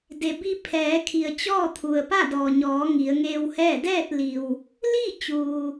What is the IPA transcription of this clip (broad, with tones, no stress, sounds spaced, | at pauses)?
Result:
d e˩ b i˧ pʰ ɛː˩˧ kʰ i˩ ə̯ t͡ɕ ɔː˥˨ t̪ʰ u˩ ə̯ p a˥˨ d ɔː˩ ɲ ɔː˩˧ ŋ i˩˧ ə̯ ŋ eː˧ w h ɛː˥˨ d ɛː˥˨ t̚ l i˩ w | l i˥˨ t͡ɕ uː˩